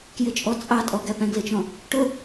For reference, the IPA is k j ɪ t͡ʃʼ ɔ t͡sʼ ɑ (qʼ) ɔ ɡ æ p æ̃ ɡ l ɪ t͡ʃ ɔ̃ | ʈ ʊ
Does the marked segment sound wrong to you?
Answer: yes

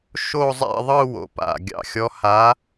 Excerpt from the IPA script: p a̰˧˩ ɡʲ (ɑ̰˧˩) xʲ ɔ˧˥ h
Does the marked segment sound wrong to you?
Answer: no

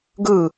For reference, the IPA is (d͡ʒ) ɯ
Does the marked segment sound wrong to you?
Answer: yes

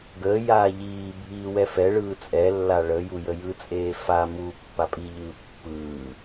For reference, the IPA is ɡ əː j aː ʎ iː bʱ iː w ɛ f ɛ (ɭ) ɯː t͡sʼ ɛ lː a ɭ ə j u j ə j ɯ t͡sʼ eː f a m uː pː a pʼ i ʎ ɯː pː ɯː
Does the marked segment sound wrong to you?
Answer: no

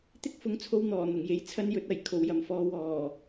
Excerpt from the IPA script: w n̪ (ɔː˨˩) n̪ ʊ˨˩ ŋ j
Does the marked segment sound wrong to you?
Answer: no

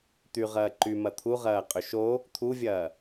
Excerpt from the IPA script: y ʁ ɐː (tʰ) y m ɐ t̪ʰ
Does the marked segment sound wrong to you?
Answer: yes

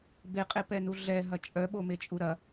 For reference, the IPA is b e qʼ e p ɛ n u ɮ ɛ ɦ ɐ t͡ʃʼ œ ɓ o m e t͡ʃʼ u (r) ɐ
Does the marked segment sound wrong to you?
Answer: yes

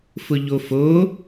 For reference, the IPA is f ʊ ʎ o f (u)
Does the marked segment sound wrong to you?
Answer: yes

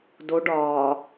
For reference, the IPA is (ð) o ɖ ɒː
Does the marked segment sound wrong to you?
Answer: yes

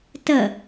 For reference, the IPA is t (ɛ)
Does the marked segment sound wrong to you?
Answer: yes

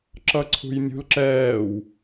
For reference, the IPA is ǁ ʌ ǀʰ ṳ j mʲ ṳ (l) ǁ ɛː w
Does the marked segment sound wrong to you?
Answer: no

